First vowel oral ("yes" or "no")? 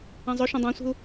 no